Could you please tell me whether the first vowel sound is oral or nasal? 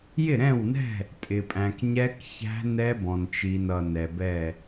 oral